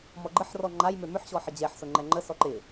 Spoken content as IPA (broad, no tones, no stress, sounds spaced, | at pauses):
m ɔ ɡ͡ǃ ə ħ r ɔ ŋ͡ǃ a j m ʏ m ʏ ħ ɕ ɔ ħ ə d͡ʑ ɛ ħ s ʊ ŋ͡ǃ ɛ ŋ͡ǃ ə s ɔ ǃ ɪ